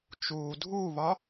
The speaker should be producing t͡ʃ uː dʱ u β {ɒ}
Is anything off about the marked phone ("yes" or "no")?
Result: no